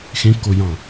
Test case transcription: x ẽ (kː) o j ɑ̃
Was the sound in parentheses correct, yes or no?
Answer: yes